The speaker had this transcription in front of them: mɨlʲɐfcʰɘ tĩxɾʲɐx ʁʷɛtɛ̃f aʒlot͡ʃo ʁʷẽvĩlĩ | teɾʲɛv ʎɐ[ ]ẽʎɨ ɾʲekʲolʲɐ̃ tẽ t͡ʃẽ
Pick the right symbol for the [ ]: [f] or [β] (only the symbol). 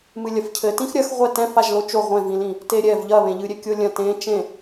β